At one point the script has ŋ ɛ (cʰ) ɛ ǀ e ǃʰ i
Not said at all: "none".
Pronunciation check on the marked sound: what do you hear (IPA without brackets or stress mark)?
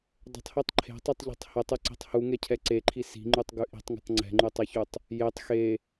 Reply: cʰ